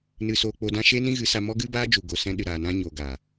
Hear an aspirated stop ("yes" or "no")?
no